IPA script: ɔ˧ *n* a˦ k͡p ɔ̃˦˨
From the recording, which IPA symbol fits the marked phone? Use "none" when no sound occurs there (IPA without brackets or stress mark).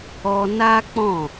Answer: n